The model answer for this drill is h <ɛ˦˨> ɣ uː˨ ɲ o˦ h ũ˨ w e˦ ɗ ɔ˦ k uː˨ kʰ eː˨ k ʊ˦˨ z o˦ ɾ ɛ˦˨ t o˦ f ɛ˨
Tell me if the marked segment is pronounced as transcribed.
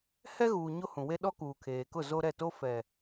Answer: no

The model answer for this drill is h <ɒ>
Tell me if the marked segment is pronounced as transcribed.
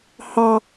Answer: no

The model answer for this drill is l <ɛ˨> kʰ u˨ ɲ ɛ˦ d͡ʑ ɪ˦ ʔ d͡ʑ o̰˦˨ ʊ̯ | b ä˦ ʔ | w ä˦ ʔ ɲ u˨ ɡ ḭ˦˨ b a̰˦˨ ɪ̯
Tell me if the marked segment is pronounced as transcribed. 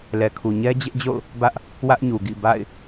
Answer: yes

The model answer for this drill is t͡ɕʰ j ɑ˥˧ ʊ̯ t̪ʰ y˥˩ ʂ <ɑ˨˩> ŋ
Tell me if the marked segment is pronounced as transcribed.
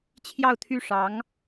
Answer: no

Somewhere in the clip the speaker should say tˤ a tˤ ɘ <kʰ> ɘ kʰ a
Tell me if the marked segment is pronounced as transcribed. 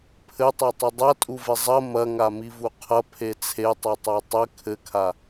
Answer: yes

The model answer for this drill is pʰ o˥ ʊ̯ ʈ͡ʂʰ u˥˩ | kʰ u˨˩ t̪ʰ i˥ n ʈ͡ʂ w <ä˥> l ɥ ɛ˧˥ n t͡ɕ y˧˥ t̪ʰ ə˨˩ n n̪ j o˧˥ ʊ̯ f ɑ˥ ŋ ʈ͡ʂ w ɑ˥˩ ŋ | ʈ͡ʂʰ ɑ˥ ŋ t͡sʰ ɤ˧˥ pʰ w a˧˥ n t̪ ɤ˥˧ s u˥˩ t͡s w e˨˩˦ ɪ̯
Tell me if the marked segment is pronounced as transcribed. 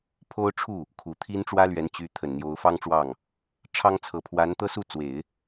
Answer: yes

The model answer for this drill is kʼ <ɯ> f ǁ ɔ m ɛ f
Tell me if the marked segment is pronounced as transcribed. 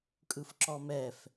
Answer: yes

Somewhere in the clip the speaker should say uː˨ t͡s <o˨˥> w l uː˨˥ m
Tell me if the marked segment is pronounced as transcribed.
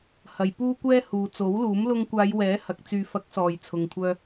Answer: yes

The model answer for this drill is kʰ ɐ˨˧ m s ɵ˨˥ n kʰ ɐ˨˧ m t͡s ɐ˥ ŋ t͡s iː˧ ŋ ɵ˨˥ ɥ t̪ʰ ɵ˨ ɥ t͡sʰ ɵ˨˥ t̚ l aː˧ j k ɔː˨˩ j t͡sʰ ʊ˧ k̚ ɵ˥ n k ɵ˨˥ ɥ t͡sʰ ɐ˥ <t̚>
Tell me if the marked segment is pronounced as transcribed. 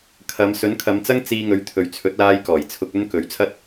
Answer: yes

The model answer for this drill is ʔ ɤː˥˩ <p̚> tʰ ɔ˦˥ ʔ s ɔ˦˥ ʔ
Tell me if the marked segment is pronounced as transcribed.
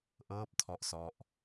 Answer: yes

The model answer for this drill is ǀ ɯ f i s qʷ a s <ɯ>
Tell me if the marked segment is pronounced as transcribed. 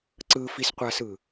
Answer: yes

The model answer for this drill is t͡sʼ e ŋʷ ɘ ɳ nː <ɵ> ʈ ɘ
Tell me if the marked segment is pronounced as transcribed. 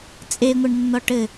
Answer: no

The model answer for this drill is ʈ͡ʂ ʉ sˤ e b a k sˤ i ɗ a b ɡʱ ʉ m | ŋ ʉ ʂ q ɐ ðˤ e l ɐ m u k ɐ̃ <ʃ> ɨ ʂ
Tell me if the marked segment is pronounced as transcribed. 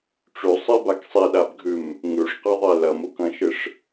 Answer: yes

